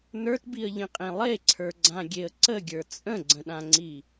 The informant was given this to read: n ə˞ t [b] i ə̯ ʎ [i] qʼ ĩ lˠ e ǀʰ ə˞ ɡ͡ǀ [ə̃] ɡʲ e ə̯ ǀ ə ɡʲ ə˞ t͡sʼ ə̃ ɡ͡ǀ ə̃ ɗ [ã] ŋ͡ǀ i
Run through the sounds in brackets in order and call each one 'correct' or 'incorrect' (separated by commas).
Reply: correct, incorrect, incorrect, correct